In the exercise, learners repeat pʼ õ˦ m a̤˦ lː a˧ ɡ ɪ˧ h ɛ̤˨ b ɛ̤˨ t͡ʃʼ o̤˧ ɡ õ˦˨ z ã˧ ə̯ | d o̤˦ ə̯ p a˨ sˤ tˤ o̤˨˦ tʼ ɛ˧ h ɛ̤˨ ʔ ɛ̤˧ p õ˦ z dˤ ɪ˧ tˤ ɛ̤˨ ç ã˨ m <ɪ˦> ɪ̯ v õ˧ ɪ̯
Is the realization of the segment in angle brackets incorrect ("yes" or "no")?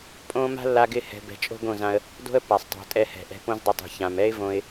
yes